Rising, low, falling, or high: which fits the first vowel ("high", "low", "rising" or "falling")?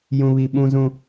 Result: high